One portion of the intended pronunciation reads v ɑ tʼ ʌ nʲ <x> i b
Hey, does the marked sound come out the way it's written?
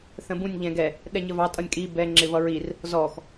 no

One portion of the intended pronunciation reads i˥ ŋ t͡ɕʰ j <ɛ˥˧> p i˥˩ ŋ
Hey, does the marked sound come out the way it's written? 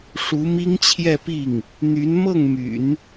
yes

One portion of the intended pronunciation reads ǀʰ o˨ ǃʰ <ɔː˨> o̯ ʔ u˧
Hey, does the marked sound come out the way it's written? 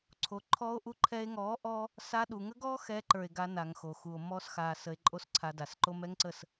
no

